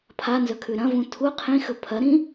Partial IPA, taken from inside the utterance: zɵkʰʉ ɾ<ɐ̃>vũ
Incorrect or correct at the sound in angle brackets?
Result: correct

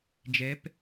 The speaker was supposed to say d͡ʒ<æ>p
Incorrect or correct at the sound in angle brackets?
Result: incorrect: ɛ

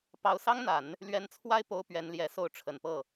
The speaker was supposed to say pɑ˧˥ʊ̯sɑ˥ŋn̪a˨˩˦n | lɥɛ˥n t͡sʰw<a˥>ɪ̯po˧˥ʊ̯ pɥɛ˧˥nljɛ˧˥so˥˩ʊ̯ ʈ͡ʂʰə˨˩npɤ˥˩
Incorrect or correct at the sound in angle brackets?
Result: correct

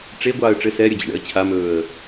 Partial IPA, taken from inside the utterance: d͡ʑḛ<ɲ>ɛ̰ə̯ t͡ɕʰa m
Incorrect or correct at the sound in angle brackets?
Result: incorrect: ɳ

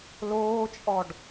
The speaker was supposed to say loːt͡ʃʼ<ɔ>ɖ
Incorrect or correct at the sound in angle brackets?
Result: correct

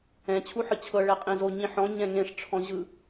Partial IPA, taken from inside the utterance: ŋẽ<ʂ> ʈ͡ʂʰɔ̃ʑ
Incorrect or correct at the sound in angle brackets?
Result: correct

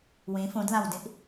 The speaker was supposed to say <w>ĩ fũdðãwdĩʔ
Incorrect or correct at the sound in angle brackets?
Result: correct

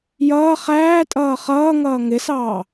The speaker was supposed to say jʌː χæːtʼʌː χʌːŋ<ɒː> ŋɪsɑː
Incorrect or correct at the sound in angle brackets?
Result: incorrect: ʌː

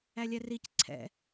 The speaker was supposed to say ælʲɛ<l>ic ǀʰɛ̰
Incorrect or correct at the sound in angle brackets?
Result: incorrect: r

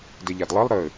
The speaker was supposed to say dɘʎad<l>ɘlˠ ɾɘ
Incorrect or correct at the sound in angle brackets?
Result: incorrect: lˠ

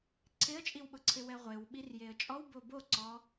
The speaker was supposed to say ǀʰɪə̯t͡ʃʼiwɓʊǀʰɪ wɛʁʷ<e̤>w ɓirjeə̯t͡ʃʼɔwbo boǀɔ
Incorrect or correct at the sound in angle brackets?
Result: incorrect: e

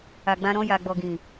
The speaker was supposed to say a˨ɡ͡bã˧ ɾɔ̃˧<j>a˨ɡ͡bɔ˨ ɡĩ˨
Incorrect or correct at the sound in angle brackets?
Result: correct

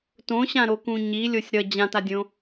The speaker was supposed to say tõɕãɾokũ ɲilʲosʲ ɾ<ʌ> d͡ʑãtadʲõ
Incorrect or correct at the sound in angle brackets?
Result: correct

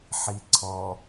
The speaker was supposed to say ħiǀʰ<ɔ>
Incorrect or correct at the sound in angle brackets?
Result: correct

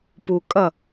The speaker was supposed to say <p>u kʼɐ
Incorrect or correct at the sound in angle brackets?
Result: correct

